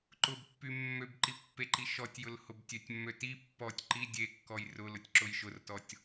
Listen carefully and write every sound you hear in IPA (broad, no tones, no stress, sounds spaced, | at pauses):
ǃ ʊ b pː y mː ø b ǃ i pː e ǃ i ʃ ɔ tʲ j ʊ l h ʊ b tʲ ø tʲ mː ø t i pː ɔ tʲ ǃ i dʲ e kː ɔ j r ʊ l ʊ tʲ ǁ ʊ j ʃ ʊ r t ɔ tʲ